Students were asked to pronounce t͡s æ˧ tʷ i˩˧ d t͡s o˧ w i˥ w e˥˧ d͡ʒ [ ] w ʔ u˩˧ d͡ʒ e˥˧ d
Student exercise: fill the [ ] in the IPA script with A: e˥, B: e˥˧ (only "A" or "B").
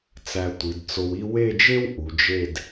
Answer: A